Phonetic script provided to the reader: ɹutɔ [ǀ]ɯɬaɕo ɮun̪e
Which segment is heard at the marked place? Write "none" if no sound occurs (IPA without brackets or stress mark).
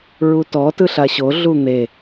t